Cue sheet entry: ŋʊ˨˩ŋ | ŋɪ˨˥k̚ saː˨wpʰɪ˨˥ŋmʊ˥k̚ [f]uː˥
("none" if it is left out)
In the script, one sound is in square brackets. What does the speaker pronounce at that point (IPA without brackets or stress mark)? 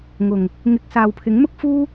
f